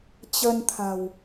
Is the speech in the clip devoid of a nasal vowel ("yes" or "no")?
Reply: yes